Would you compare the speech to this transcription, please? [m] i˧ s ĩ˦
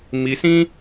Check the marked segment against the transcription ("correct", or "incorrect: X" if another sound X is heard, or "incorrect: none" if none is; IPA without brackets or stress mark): correct